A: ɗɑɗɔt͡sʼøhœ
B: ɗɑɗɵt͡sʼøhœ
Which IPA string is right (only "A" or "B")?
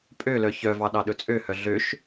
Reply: B